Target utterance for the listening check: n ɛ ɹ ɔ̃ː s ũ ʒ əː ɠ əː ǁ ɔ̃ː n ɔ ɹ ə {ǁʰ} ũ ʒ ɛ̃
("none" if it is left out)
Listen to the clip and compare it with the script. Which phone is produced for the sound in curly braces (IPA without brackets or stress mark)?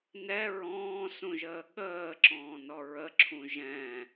ǁʰ